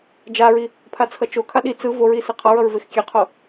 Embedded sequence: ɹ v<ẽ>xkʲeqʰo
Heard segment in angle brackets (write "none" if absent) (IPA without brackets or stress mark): e